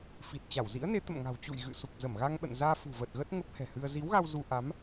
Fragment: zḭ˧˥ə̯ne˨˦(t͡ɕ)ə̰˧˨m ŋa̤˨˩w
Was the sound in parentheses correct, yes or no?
no